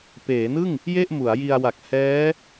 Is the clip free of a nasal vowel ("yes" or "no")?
yes